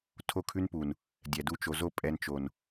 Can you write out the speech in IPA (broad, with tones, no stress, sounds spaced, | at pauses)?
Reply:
tʰ o˦˨ kʰ ʉ˦ n p u˨ n | dʲ ɛ˨ d u˧ t͡ʃ o˨ z o˦˨ pʼ ɛ˧ n t͡ʃ o˨ n